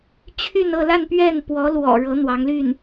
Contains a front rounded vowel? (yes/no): yes